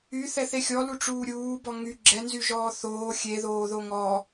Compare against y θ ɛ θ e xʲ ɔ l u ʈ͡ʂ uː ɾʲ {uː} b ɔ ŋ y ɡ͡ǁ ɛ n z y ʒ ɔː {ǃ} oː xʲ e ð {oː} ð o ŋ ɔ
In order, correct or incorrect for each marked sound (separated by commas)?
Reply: correct, incorrect, correct